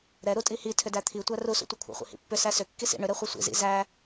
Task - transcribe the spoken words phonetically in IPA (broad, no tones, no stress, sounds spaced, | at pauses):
ɾ ɛ ɾ u tʼ i h i tʰ ʏ d æ t̪ʰ i tʷ æ r u s ṵ tʷ i kʷʰ æ̰ χʷ ḭ h ḭ pː ʏ s æ s ʏ kː i s ḭ ɳ ʏ ɾ ɛ χʷ ɛ sʷ ḭ z ḭ z æ